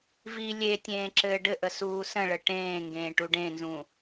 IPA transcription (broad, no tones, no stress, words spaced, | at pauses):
vi lʲetʲẽːǁɘː ɖɘʔəsuː sə̃ɭə ʈẽːŋɡẽːʈu ɖẽnzũ